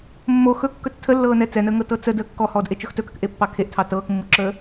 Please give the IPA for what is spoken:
mːo xɵkːɵt͡s tʰəlːɤːnɛ t͡sɛnəːŋɤ tɤt͡sə dəːkːɔhɔːdʔe t͡ʃɵxtɵkək ʔepːɑkʰeʔtʰɑ tɤːkmːuǁəː

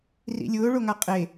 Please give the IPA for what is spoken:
rḭlʲʊː ɭoŋaqʼe

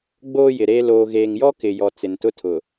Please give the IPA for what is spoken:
ɡ͡boː˦jɪ˨ɾeː˦ loː˨ɣeː˨ŋjɔ˦ kɪ˨jɔ˨ t͡sɪ˨ntʊ˦tʰʊ˨

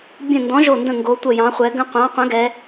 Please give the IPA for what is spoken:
bʲə̃˧˩ ndɔ̃˨˥ʒo˧˩ndə̃˧˩ ŋɡo˩˧tʷə˧˩jɑ̃˩˧χʷɛ˩˧ ɡə̃˧ qʷɑ̃˨˥qʷə̃˨˥ɡɛ˩˧

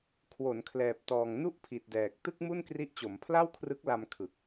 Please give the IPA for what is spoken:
kʰwo˩˦nkʰlɛː˨˩p̚tɔː˨˩ŋ nu˥˩ʔpʰi˨˩t̚dɛː˨˩k̚ tɯ˥˩k̚mu˥˩nkri˦˥ʔ t͡ɕo˩˦mpʰla˥˩wkʰrɯ˦˥k̚ la˧m kʰɯ˨˩k̚

